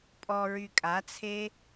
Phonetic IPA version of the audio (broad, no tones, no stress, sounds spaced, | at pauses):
pʼ ɔ ɹ y kʼ a t͡sʰ e